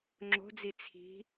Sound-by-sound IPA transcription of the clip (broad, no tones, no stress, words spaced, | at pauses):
ŋ͡ǁo̤d͡zi t͡sʰi̤